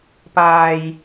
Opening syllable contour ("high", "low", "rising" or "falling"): low